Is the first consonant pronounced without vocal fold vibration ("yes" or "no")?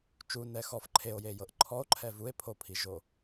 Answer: yes